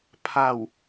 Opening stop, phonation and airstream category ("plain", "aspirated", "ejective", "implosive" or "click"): aspirated